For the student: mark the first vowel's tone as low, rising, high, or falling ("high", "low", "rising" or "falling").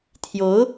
rising